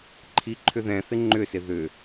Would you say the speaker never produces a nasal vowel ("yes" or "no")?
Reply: no